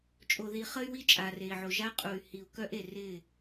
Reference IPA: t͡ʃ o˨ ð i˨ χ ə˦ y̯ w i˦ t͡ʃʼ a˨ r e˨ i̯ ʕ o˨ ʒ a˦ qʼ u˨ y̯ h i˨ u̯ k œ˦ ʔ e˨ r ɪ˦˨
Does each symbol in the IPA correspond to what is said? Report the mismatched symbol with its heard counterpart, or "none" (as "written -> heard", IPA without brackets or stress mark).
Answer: t͡ʃ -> t͡ʃʼ